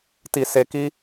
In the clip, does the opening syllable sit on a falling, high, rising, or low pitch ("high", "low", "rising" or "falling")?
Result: low